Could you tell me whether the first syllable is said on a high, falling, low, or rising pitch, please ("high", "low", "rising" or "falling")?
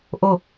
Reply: falling